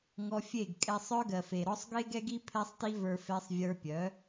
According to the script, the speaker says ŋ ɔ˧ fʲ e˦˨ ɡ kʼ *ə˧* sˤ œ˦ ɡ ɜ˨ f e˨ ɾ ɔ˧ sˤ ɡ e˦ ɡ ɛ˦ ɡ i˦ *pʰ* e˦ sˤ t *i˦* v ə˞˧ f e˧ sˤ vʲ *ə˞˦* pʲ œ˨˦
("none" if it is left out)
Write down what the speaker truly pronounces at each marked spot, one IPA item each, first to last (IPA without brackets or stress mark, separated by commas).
ɛ˧, pʰ, i˦, ə˞˧